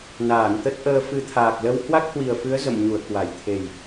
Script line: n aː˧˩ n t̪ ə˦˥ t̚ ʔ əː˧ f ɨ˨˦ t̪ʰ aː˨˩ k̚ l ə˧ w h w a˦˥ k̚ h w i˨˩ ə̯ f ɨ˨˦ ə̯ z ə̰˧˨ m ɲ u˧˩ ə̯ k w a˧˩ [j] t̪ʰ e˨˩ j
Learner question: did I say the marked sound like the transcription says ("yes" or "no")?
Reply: yes